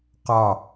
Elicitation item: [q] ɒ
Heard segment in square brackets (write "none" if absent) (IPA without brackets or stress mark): q